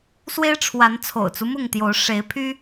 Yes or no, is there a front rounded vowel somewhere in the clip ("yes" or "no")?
yes